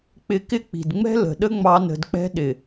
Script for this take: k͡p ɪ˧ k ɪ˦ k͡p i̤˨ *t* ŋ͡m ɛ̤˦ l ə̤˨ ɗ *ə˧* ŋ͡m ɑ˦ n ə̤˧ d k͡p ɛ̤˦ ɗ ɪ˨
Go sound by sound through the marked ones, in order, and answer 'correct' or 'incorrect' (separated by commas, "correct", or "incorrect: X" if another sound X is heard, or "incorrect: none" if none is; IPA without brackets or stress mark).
incorrect: d, incorrect: ə˦